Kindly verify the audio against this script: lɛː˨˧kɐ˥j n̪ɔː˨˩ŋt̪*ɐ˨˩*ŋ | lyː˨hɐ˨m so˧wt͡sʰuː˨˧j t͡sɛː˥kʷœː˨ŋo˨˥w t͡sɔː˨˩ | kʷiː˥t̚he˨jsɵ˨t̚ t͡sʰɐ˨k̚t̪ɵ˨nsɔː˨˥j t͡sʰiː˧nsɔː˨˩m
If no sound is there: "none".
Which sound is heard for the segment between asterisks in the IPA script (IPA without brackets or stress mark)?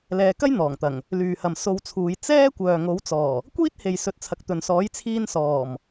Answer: ɐ˨˩